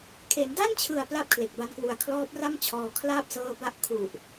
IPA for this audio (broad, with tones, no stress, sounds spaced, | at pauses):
kʰ e˩˦ n d a˥˩ n t͡ɕʰ ɯ˨˩ a̯ p l a˦˥ p̚ kʰ l e˨˩ k̚ b a˧ n k w u˩˦ a̯ kʰ l ɔː˦˥ p̚ r a˥˩ m t͡ɕʰ ɔː˧ kʰ l aː˥˩ p̚ s ɤː˦˥ b a˥˩ ʔ kʰ u˨˩ ʔ